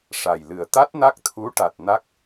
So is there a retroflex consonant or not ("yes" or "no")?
yes